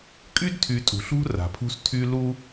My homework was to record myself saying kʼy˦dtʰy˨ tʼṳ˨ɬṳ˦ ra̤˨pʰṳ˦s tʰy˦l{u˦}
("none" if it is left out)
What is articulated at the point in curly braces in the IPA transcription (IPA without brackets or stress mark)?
u˦